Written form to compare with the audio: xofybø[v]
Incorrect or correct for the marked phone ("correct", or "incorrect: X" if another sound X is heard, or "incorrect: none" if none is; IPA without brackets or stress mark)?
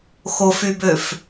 incorrect: f